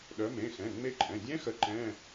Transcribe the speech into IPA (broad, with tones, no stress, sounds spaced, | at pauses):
ɗ œ˨˦ m ẽ˩˧˩ x ɛ̃˩˧˩ ŋ͡m e˦˥ ǃʼ ɛ̃˩˧˩ dʲ ɛ̃˦˥ x ə˨˦ ǃ ɛ̃˧˥˧